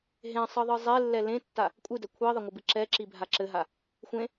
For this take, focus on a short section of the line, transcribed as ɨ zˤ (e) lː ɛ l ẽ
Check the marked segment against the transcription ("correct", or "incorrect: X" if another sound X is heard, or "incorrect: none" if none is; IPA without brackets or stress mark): correct